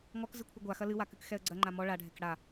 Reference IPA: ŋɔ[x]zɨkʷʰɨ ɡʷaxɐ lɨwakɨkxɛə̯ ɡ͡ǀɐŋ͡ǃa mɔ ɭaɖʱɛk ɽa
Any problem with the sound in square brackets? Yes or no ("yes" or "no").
yes